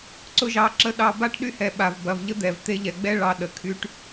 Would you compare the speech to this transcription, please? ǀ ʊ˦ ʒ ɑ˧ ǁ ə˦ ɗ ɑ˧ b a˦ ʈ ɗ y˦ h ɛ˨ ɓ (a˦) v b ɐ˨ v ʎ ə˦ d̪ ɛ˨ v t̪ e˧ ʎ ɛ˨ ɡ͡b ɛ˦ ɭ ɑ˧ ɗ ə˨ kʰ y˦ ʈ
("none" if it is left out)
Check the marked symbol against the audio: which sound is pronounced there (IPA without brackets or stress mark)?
a˨